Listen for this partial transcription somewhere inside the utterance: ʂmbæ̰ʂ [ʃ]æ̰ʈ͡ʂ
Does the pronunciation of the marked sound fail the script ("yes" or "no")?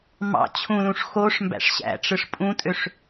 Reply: yes